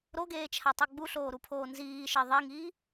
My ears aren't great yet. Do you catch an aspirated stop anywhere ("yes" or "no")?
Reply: yes